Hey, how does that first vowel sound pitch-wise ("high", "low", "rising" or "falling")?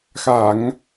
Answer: low